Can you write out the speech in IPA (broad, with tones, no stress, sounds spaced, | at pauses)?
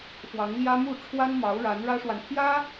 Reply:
x w ɑ˧˥ ŋ l j ä˥ m u˥˩ ʈ͡ʂʰ w a˥ n m ɑ˧˥ ʊ̯ ɻ a˧˥ n ɻ ä˥ ʂ w a˨ n pʰ j ä˥